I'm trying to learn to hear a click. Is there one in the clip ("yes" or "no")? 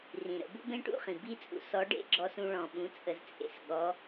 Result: yes